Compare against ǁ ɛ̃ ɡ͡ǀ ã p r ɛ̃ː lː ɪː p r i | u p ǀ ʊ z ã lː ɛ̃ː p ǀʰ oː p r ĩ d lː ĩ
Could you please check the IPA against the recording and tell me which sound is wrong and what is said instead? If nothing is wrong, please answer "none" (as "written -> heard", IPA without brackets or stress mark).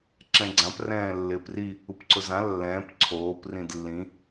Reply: none